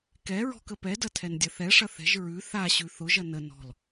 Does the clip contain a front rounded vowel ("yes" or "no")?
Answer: no